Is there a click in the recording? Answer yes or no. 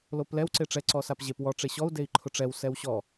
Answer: yes